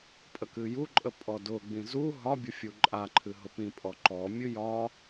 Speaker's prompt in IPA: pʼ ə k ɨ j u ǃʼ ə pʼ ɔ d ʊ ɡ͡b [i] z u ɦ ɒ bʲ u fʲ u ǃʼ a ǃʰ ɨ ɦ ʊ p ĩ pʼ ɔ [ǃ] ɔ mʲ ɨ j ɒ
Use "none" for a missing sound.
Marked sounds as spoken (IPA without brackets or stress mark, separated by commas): ĩ, ǃ